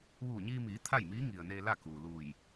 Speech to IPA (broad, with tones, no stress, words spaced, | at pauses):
ʋuː˧˩ɲiː˧miː˩˧ t̪ʰa˥˨jmiː˧˥ŋi˩ə̯neː˧ la˥˨kuː˩luː˧˩j